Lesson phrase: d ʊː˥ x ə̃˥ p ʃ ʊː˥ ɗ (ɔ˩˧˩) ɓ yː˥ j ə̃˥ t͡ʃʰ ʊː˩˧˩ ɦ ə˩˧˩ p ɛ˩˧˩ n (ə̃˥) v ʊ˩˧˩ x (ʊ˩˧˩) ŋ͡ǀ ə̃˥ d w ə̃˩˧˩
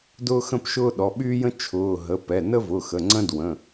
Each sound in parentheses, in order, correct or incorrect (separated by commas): correct, incorrect, incorrect